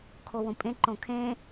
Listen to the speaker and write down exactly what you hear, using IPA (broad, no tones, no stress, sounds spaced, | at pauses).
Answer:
kʰ o w õ pʼ ẽ ǃ õ kʰ ẽ